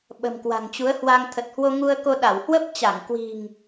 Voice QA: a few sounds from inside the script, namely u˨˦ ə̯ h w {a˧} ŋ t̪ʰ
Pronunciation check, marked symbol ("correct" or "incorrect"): correct